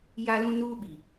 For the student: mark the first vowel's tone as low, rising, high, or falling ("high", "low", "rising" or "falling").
high